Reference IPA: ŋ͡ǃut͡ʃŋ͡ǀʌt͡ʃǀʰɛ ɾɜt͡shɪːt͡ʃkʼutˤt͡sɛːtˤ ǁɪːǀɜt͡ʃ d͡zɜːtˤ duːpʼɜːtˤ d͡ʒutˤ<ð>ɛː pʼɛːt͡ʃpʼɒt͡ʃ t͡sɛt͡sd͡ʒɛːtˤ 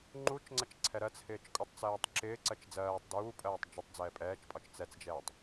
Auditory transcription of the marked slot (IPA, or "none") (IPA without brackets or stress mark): d͡z